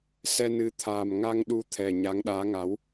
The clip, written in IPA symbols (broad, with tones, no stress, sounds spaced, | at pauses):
s ɛ˧ n ɨ˨˦ t̪ʰ aː˨˩ m ŋ a˧ ŋ ɗ u˨˦ t̪ʰ ɛ˨˩ ɲ a˨˦ ŋ ɗ aː˨˦ ŋ a˨˦ w